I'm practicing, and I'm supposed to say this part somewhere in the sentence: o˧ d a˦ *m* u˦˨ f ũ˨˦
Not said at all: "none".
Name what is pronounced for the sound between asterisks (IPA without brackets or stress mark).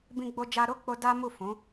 m